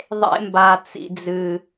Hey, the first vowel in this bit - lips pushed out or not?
no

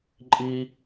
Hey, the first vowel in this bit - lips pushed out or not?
no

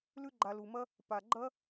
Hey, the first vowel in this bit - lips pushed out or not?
yes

